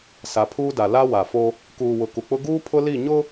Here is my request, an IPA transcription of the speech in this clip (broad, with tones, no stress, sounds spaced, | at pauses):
s a˨ pʰ uː˦ d a˨ l a˦ w a˨ f o˦ | k uː˨ w ʊ˨ k u˨ k͡p ʊ˦ ɡ uː˦ pʰ ʊ˦ l i˦˨ ɲ ʊ˦